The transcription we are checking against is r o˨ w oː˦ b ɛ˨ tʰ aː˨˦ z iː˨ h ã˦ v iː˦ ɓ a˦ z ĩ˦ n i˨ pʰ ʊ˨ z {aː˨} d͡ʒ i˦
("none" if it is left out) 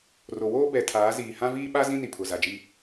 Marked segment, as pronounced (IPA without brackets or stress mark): a˨